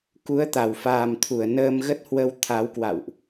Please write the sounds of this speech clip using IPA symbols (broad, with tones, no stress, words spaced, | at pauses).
ku˨˦ə̯t̪a˧˩wfaː˨˩mt̪ʰu˧˩ə̯ nəː˧mɣə˦˥t̚hwə˧w t̪ʰa˨˦wkwa̰˧˨wʔ